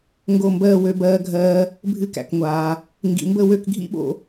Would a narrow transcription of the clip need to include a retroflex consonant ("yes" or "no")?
no